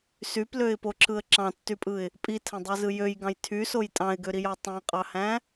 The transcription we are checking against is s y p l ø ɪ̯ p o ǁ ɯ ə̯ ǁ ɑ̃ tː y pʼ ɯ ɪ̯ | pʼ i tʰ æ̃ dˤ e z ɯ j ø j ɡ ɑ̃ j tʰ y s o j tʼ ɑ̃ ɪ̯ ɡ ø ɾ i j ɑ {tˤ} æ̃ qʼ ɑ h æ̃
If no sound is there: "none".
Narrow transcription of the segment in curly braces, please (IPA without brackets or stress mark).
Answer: tˤ